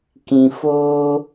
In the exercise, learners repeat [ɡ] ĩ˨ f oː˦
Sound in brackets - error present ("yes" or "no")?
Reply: yes